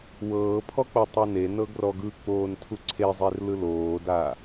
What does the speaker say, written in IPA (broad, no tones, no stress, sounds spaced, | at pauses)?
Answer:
w ɤː pʰ ɔ k͡p ɤ tˤ ɤ n e n ɤ ɡ r ɔ ɡ ɯ k͡p oː n tʰ u ǀʰ e zˤ e r l ɯ l oː d aː